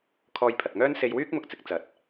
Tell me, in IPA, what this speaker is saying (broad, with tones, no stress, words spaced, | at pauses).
kʰɔː˧jpʰɐ˨t̚ŋœː˥n se˧jwyː˥k̚ mʊ˥k̚t͡sɪ˨˥k̚ t͡sɐ˨˥t̚